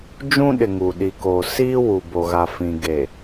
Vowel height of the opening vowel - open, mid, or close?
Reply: close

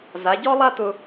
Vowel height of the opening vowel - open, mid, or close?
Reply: open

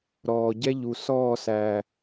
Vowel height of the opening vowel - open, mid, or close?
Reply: mid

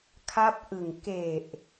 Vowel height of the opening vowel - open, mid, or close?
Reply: open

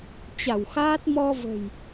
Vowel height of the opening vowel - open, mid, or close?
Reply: open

